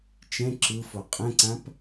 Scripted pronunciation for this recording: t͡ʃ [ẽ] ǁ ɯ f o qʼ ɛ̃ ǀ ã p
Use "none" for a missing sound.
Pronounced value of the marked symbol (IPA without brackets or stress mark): ɛ̃